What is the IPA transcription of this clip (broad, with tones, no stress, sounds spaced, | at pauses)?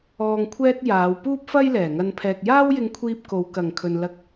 ɔː˨ ŋ kʷʰ ɛː˧ t̚ j aː˨˧ w p uː˥ p̚ f ɐ˥ j l ɛː˨˩ ŋ ɐ˧ n pʰ ɛː˨ k̚ j aː˥ w j ɪ˧ ŋ kʷʰ iː˧ p̚ k o˨˧ w k ɐ˨˩ ŋ kʰ ɵ˨ n l ɐ˧ k̚